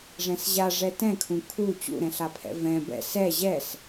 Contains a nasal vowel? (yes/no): yes